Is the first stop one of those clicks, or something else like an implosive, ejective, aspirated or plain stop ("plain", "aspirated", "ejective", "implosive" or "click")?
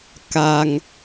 plain